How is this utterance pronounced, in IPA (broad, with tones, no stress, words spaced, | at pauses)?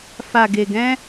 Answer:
fa˨ɡe˨ɡɛ̃˧